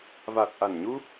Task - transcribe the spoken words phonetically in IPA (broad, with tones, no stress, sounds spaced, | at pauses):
v a˨˩ t̚ ʔ a˨˩ n ɲ u˧